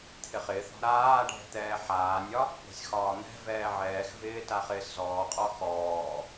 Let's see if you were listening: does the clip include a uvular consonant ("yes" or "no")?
yes